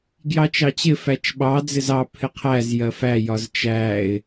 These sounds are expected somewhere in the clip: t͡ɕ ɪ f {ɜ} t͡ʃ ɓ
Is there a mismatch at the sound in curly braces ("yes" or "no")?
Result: yes